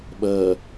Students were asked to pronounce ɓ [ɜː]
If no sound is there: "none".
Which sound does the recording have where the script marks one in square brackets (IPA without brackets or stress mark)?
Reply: ɜː